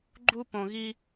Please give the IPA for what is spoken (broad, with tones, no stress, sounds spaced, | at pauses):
ɡ͡ǃ u˥ p õ˧ ɣ i˥